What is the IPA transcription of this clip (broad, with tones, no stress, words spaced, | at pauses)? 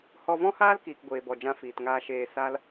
hɔ˧vɔ̃˦haː˦l kiː˨kɡʷeː˨bɔ˨d͡ʒã˧ fiː˨tŋaː˧ ʃeː˧ sa˦l